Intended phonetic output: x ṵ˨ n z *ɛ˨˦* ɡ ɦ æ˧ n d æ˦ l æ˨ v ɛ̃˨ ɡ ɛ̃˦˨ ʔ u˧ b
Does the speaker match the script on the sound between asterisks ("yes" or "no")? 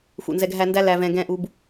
no